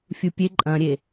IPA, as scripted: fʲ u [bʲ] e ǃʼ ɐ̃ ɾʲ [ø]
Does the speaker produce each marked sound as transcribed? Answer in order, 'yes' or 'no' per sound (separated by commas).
no, no